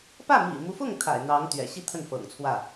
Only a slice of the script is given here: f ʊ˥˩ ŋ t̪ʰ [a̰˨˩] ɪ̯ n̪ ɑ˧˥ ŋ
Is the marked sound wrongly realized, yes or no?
no